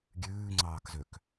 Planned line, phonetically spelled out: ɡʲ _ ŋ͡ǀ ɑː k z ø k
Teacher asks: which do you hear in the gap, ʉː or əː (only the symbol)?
ʉː